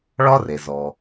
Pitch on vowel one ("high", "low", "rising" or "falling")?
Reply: high